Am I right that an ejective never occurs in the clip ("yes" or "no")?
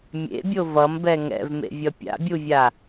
yes